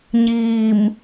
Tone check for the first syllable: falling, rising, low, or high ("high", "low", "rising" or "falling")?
low